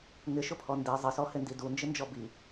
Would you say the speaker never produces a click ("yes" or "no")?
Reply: yes